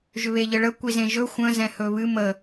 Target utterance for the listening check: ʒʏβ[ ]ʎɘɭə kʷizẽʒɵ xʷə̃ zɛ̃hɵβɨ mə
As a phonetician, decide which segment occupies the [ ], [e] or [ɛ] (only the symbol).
e